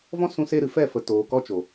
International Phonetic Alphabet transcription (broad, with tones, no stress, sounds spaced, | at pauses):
v ɔ̃˦ s ũ˧ s e˧ ɾ ɨ˨ f ɛ˦˨ f ə˨ t oː˨ k ɔ˦ t͡ʃ o˨